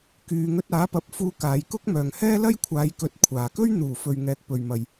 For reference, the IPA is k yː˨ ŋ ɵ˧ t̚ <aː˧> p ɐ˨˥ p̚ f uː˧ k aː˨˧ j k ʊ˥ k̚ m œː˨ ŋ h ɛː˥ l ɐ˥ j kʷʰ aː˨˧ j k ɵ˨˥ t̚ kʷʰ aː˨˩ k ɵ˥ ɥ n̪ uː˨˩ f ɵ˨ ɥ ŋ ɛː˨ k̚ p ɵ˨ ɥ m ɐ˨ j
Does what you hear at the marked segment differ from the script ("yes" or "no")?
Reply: yes